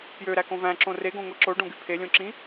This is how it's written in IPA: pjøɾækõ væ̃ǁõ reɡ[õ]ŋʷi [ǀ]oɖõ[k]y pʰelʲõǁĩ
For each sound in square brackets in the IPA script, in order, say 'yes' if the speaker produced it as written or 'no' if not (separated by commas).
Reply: yes, no, no